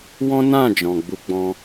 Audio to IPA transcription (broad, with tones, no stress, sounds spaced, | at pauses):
w ɔ̃˦ n ã˦˨ d͡ʒ ɔ̃˨ ɡ͡b u˧ ɡ͡b ɔ̃˧